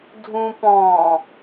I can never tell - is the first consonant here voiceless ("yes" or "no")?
no